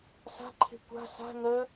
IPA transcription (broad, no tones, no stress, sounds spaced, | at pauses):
s a̤ ǃʰ e̤ kʷ a̤ s a̤ ŋ ɜ